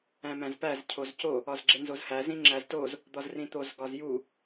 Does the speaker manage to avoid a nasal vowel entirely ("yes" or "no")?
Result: no